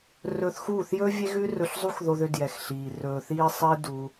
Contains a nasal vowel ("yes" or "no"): no